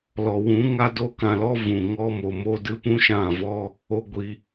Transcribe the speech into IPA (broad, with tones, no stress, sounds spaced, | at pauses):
l ɔ˨ w ũ˨˦ ŋ a˦ d o˦ k ã˧ l ɔ˦ v ũ˨ ŋ ɔ˦ m o˨ m o˦ d ɨ˦ p ũ˦ ʃ ã˦˨ v ɔ˦ | o˧ ɡʷ i˧